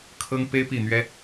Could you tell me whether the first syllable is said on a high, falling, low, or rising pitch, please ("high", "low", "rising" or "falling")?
high